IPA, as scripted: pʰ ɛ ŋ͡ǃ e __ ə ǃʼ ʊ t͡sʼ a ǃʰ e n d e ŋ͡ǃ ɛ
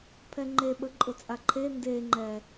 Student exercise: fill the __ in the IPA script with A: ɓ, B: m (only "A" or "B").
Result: A